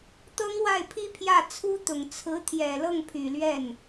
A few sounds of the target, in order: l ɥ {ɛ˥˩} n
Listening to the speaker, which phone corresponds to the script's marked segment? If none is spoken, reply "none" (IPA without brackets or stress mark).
ɛ˥˩